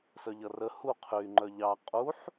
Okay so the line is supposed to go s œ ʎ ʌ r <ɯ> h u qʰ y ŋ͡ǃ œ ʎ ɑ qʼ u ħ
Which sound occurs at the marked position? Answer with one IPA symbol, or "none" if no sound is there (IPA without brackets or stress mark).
ə